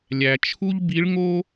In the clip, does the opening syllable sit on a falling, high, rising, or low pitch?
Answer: low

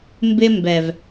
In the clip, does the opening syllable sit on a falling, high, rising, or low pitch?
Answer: high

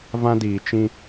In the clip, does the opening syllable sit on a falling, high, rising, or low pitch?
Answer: high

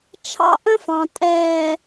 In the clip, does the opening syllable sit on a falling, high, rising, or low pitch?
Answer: high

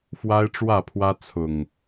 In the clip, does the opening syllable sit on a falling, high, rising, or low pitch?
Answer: high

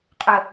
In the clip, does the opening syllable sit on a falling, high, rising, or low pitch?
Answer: low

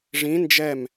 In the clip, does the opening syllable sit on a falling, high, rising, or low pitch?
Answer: rising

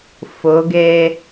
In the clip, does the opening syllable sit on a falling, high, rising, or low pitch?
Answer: rising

